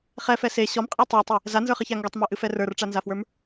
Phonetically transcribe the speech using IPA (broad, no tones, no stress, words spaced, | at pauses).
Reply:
χɛfɛ se ɕɔmqʼɛ tˤatˤɨ | zanzə˞χɨça ŋɡutˤmə˞ʔɨfɛ rə˞rʈ͡ʂanzafwə˞m